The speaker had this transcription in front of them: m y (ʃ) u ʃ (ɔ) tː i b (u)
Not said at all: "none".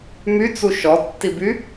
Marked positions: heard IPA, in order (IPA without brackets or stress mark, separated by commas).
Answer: t͡s, ɔ, y